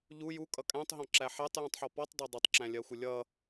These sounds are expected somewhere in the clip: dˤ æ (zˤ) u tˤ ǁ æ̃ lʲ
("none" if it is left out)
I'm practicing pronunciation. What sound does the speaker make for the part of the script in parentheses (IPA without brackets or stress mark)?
dˤ